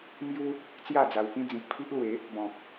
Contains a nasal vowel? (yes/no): yes